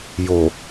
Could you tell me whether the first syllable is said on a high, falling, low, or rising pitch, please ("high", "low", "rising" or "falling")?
low